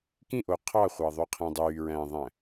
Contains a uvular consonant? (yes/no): yes